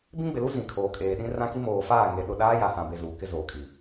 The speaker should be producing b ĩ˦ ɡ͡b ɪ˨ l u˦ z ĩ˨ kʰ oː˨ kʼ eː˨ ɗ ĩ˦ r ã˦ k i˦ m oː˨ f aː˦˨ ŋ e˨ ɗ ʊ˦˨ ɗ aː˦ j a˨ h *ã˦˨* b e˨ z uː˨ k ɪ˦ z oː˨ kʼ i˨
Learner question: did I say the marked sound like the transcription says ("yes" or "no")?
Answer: no